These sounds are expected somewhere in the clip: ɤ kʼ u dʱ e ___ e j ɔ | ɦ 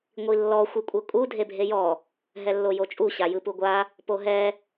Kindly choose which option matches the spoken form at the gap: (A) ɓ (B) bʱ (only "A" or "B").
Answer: B